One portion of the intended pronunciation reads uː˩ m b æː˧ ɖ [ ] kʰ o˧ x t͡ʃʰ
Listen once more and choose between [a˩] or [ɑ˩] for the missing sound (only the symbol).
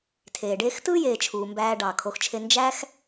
ɑ˩